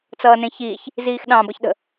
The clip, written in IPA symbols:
t͡sʌːnẽçiːç | ziːxɗɑ̃ bʌçɗə̤

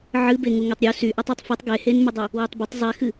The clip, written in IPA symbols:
ʕɨbe ŋuŋetˤɾʲu sy ʔɛtˤutˤfɨtˤ ɡehenmedˤu | wɨtˤbətˤ zˤɛxɨ

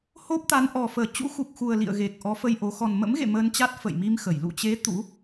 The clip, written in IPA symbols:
ho˦˥p̚t̪a˨˦nʔɔ˨˩ fəː˨˩ t͡ɕṵ˧˥xu˨˩k̚xu˨˩ə̯ lḭ˧˨ə̯ ɣe˨˩k̚ ʔɔ˨˦fə˧jʔo˨˦ xɔ˨˩n mə̰˧˥mɣḛ˧˨ məː˧nt͡ɕa˦˥t̚ fə̰˧˨jmi˧mxə˧˩j lṵ˧˨t͡ɕe˨˦ t̪ṵ˧˥

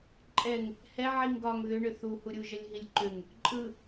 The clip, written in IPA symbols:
ǃʼɛŋ | hɛ ʕiŋɡɒŋ ðʏɳʏ θuhuɾʲu ʒəlʲɦilʲǃʏŋ | ǃʼɯ

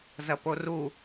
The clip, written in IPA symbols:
zɐporu

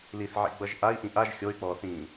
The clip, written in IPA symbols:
liθʕḭɡ͡bʌʒ ʔai̯ʔĩ ʔaʒ xʲoy̯k͡pɔːθĩː

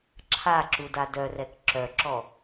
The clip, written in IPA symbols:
ǁʰaǁuda dœrɛk ǁœǁɔ

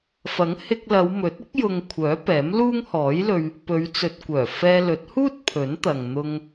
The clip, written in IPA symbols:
fɐ˨˥ŋhɪ˧k̚lɐ˨˧w mɵ˨˥t̚ ɪ˨˥k̚jʊ˨ŋ kʷʰœː˨˥pɛː˨˥mluː˥ŋ hɔː˨˥jlɵ˧ɥ | pɵ˨˧ɥ t͡sɵ˨t̚kʷœː˨˩ fɛː˧lɵ˨˥t̚huː˥t̚ pʰɵ˨˥nt̪ɐ˨ŋ n̪ʊ˧ŋ

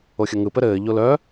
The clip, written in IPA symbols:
oxʲəŋɯ pɘɾɘː ʎolœ

